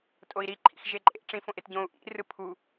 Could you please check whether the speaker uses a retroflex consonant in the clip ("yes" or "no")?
yes